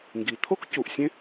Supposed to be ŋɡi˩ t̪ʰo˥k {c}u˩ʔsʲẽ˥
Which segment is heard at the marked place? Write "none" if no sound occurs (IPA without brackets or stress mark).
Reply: c